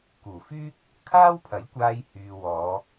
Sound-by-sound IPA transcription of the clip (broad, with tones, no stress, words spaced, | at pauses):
kuː˨˩fyː˥k̚ | kʰaː˥wpʰɐ˨˥j kʷaː˧jhyː˨ wɔː˨˧